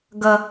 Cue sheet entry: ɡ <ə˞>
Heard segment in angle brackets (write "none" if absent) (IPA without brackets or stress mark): ʌ